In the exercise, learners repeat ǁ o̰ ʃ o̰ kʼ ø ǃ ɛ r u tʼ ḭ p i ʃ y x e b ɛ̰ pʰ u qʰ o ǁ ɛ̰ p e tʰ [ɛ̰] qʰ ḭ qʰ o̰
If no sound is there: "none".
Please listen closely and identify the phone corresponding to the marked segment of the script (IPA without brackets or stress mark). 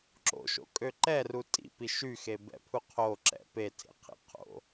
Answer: ḛ